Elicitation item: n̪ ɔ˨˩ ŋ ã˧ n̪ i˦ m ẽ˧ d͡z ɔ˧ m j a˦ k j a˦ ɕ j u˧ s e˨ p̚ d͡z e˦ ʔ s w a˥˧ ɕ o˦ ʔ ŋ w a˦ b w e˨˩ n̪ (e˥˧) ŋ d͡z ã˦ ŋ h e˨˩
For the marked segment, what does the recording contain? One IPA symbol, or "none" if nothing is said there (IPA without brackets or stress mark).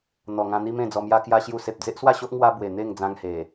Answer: e˥˧